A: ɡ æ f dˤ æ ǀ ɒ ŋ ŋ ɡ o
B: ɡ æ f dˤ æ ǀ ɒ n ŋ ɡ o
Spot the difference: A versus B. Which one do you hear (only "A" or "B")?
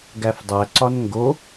B